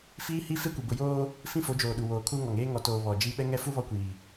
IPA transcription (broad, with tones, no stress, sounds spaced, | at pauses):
f iː˦ h i˦ f e˦ kʷ i˨ b ʊ˨ j oː˦ | f ĩ˦ f o˨˦ d͡ʒ oː˨ ɗ u˨ w oː˨ kʰ u˦ ŋ ɔ˨ ŋ eː˦ ŋ ɔ˨ t oː˨ β ɔ˨ d͡ʒ i˦ ɓ ɛ˦ ŋ ɛ˦ f u˦ β ɔ˦ kʷ iː˨